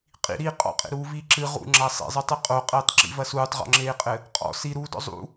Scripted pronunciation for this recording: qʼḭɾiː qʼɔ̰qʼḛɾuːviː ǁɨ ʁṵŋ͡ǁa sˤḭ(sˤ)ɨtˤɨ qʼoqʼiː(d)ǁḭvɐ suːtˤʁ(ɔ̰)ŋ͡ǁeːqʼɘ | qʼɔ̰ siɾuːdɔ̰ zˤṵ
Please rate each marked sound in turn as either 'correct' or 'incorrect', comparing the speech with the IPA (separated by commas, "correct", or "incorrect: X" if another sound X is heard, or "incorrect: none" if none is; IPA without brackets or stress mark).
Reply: incorrect: zˤ, incorrect: tˤ, correct